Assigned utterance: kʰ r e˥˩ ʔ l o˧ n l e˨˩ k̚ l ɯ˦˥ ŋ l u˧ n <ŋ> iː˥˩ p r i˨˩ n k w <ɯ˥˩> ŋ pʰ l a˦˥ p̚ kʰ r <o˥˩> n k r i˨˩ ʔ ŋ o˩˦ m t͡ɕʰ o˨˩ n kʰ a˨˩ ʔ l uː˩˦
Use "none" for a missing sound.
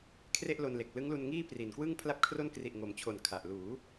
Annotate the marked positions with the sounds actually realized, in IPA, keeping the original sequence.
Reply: ŋ, ɯ˥˩, o˥˩

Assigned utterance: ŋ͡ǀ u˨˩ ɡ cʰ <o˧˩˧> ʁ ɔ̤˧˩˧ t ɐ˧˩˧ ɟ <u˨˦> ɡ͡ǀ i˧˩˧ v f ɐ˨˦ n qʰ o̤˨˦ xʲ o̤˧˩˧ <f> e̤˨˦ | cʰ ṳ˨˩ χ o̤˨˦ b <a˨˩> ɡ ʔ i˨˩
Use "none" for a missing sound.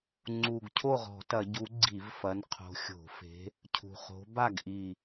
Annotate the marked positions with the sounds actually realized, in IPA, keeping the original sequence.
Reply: o˥˩, u˨˦, f, a˥˩

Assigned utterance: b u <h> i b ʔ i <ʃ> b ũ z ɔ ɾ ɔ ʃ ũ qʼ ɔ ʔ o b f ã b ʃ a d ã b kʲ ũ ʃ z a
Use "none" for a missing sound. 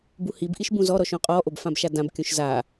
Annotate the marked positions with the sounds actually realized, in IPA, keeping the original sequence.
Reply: h, ʃ

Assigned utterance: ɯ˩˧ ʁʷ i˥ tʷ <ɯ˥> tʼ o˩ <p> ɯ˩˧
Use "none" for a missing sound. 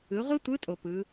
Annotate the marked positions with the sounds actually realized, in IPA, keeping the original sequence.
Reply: ɯ˧˥, p

